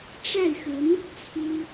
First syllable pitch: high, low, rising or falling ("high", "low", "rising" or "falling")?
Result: falling